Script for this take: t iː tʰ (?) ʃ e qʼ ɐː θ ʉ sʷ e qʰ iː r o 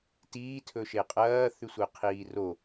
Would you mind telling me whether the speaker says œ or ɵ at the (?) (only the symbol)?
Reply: ɵ